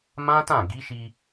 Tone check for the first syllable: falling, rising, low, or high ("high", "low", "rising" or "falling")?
high